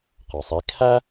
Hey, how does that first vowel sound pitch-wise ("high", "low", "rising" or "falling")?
low